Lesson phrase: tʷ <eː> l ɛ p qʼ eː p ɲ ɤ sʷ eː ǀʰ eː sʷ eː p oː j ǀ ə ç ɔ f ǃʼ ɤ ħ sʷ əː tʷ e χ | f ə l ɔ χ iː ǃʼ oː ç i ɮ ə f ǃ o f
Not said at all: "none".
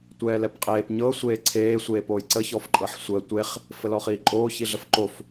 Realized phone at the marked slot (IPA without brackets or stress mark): ɛː